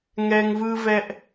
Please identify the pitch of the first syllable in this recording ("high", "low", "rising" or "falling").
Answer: high